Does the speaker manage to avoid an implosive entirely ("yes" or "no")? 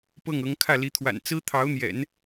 yes